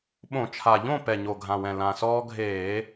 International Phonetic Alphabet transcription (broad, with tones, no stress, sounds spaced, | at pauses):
ɓ õ˧˩˧ t͡ʃʰ a˨˩ ʎ õ˥˨ p ɛ˨˩ ɲ o˨˩ ɡʱ ã˨˩ w ɛ̃˨˩ l ã˨˩ s ɔː˦ ɡʱ eː˧˩˧